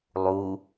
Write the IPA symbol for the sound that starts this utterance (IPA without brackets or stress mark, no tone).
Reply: lˠ